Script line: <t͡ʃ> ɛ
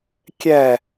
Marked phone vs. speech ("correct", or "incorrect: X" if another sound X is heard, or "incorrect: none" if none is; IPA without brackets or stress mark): incorrect: kʲ